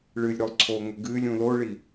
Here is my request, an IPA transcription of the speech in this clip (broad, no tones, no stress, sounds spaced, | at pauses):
ɭ ɨ lʲ ɾ o lˠ ǀʰ oː ŋ ɵ ɡ ɨː lʲ ũ l o ɭ i